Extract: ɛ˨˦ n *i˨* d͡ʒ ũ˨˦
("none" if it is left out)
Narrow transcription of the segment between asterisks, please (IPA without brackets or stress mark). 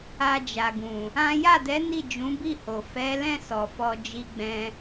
i˦˨